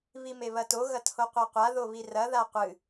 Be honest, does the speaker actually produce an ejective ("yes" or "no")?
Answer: no